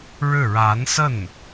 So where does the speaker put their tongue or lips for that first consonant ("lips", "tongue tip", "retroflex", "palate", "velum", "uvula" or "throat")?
retroflex